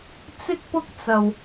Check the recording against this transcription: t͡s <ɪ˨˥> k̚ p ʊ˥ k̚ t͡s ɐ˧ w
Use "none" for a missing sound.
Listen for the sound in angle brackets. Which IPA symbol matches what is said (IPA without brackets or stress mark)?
ɪ˥